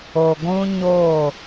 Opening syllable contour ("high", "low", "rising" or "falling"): low